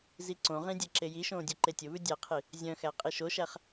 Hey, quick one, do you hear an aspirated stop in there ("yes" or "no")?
yes